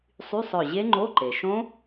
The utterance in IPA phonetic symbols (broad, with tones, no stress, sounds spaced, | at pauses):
sˤ y˧˥˧ sˤ œ˧˩ ʑ e˦˥ ŋ͡ǃ o˧˥˧ ǃ e˩ ʃ õ˦˥